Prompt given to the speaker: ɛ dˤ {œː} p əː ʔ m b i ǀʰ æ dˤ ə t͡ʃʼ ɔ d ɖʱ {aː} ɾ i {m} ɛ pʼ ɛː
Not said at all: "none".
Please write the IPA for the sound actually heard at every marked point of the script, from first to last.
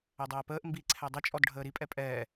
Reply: ɛː, əː, pʼ

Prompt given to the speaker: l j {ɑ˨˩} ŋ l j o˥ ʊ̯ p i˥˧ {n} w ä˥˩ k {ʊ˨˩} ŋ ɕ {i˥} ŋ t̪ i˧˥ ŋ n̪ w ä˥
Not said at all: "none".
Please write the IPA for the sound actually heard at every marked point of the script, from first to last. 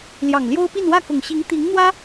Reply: ɑ˨˩, n, ʊ˨˩, i˧˥

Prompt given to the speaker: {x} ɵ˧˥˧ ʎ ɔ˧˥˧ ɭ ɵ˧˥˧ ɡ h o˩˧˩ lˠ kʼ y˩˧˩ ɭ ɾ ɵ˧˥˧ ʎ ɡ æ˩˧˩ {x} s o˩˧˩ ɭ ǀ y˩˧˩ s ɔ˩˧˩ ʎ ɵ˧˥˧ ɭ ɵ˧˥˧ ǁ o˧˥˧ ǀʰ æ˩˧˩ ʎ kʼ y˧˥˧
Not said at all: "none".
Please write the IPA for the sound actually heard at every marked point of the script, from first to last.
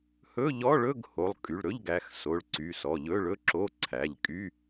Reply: h, x

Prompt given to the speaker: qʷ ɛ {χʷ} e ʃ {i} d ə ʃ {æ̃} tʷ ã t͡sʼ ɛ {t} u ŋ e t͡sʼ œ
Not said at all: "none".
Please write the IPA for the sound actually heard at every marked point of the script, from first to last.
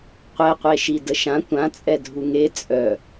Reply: qʷ, i, ã, dʱ

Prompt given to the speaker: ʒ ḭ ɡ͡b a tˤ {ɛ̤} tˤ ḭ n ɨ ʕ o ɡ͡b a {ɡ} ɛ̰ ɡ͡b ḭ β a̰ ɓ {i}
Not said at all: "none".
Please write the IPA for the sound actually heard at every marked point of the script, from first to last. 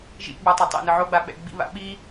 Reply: ɛ, ɓ, i

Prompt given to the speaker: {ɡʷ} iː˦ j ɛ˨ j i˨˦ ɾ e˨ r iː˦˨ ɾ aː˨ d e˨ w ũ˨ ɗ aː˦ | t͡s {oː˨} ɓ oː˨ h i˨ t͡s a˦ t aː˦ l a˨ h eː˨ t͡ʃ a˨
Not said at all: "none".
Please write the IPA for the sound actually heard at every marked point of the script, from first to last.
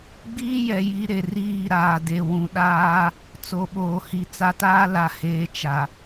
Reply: ɡ͡b, o˨

